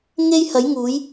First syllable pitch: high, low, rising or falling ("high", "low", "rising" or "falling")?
high